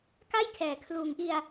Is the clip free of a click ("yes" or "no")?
yes